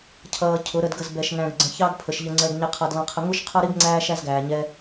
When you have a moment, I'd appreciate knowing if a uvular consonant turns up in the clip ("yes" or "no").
yes